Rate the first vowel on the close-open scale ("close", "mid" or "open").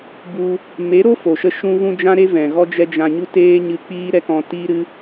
close